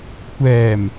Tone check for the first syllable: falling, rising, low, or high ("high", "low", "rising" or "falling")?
low